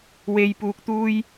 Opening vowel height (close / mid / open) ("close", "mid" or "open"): mid